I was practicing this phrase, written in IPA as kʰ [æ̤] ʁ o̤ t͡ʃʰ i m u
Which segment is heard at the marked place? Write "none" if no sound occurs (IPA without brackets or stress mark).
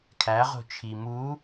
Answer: æ